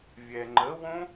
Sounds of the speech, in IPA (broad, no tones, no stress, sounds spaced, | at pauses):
vʲ ɛ ŋ͡ǃ ə w õ